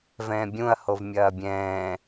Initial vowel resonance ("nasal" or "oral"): nasal